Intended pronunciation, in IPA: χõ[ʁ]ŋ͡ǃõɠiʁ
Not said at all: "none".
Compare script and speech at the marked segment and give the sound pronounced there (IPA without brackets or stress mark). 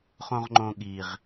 ʁ